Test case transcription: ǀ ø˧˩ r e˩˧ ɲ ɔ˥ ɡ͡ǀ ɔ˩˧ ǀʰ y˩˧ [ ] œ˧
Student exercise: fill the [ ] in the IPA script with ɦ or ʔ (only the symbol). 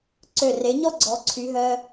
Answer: ɦ